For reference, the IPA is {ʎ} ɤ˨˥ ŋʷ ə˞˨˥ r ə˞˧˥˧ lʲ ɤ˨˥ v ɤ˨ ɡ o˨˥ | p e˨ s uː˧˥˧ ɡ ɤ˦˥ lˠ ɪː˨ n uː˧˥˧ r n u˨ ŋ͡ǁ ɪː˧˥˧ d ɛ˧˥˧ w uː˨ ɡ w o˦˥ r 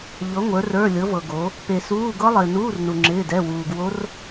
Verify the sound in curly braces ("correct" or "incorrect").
correct